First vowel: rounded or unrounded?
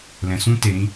unrounded